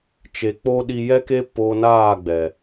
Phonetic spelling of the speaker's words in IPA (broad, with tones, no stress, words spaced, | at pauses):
t͡ʃe˨k͡po˧ ɗi˧jɛ˦ke˦ po˧naː˦˨ɡ͡bɛ˨